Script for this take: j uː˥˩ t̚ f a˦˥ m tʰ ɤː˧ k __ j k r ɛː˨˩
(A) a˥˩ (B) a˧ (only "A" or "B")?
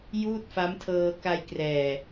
B